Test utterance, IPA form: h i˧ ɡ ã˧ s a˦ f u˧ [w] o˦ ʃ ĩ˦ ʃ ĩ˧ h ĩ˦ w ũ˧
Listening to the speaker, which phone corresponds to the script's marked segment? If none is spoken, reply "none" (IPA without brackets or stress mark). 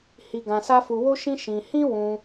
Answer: w